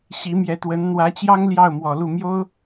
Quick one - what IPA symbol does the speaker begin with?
ɕ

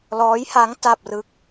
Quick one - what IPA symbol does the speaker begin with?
l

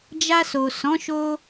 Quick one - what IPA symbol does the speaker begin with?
d͡ʒ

